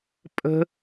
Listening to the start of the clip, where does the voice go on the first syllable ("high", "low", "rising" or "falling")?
high